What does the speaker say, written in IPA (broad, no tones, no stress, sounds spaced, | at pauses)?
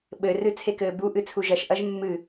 ɓ ɘ r ɨ t͡sʰ e k ɘː b u ʔ ɨ t͡sʰ u ʒ ɐ ʃ ʔ ɐ ʒ mː ɨ